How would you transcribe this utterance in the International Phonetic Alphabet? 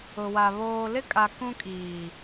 ʊ˨wa˨ βoː˨lɪ˦kʼa˨ kũ˦kʼiː˨

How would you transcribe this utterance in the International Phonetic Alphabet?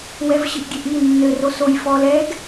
wɛvɕɨʔɡʲeʔi nːɘro soj fɔlɛɡ

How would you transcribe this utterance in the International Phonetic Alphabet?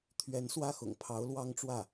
t̪ʰɥɛ˧˥nswä˥˩xʊ̰˨˩ŋpʰɑ˧˥ʊ̯ lwɑ˥ŋʈ͡ʂwä˥˩

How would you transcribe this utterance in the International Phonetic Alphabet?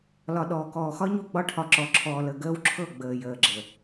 lɒ˨ ɗɔː˨kɔː˨xɒ˦ɲu˦˨ ɡ͡bɒ˦ʈʰɒ˨ǁɔ˨ǁʰɔː˨ lə˨ɡəː˦wǁʰɤ˦˨ ɡ͡bəː˨jəː˨ɡ͡ǁə˨

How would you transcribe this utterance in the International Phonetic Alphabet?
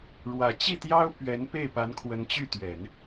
ɻwä˨˩ t͡ɕi˥˩t̪jɑ˥ʊ̯ pɥɛ˧˥npe˥˩ɪ̯pa˧˥nkʰwə˧˥n t͡ɕy˥˩t̪ɥɛ˨˩˦n

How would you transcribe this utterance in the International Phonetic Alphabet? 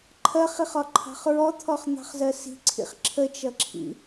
ǃʰɜχiχɒǃʰɑ̤χ ɹɔt̪ʰɔχn̪ɑ̤χzɜ si̤ǀʰḭχ ǁʰət͡ʃʌǁʰḭ

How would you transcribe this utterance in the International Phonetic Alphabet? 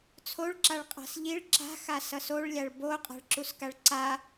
t͡sʰoɭǁaɭ qʼa̤sʎiɭ ǁa̤xasʌs oɭlʲaɭ bo qʼa̤ɭǁuskaɭǀa

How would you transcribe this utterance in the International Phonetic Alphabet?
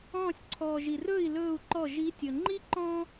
ɔ̃ː˧˩sʲǀʰɔː˩ʒi˩rɵː˥˩i̯ lɵː˧˩u̯ǃɔ˧˩ ʒi˨˦tʲɵ˩ ŋ͡ǃi˦ǃɔ̃˦

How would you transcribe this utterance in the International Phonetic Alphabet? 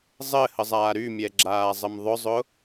zˤɘhəzˤaː ɾymʲɛɡ͡ǁaːzˤəm ðˤʊzˤʊ

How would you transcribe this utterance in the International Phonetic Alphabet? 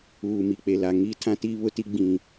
uː˨ mi˨k͡pe˨la˨ ŋi˦ tʰã˦tiː˦βʊ˦ti˦ ɡ͡bĩ˦

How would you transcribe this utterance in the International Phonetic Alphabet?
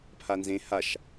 pʰanzẽ haʃ

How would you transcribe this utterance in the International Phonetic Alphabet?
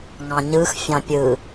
ŋɑ̃ɲɯx fʲɑ̃pʲɯ

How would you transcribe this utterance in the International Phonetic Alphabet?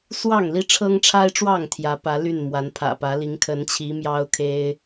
swɑ˥˨ŋli˦ ʈ͡ʂʰɤ˦ŋʈ͡ʂʰa˦ɪ̯ʈ͡ʂwɑ˥˨ŋ t̪ʰjä˨˦pä˨˦ ly˥˨nmwa˨˦npʰä̰˨˩pä˨˦ li˨˦ŋkʰə˨˦nt͡ɕʰi˨˦ mjɑ˦ʊ̯kʰe˦ɪ̯

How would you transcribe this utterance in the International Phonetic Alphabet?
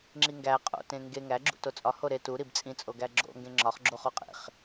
ŋ͡ǁiŋɡæ qʼo̰tẽ ŋɡe ŋæɡ͡ǁṵ tot͡sʼɒ hoɾe tu ɾibt͡sʼĩ t͡sʼoɡæɡ͡ǁo̰ ŋɡẽŋ͡ǁɒχɡ͡ǁo χoqʼḛχ

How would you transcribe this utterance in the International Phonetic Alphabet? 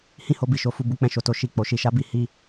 hĩ˦ho˧bi˨ʃo˧ fu˧bu˧k͡pɛ̃˧ ʃo˨to˧ ʃi˨k͡po˨ʃi˧ ʃa˧bi˧ hi˧

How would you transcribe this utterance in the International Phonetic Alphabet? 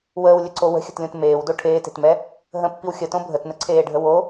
wəːwlʲəǀo wə̤xʲə̤tlʲõt meːwdo ʈʰeːte̤tmɛ | ɦə̃pːiw xʲətõ bʱətnəǀʰeːɖʱə wo

